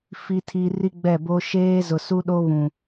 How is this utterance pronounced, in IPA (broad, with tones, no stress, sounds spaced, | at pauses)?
f i˨ tʰ i˨ r i˦ ɡ͡b ɛ˦˨ b o˦ ʃ eː˦ z ʊ˨ s u˦ ɗ o˦ β ũ˨